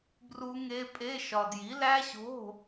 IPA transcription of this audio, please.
b r u˦˥ ŋ e˦˥ pʼ e˧˥˧ ʃ ɒ˧ d j i˨˥ l æ˦˥ ɕ o̤˧˥˧

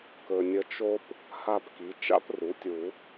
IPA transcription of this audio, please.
k ɵ˨ nʲ ə˧˥ t͡ʃ o˥ p | h a˥˨ p k i˩˥ t͡ʃ a̰˥ p r u˩˥ tʲ u˨˩˦

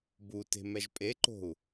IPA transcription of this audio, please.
b u t e̤ m ɛ ʒ pʼ e ǃ o̤ u̯

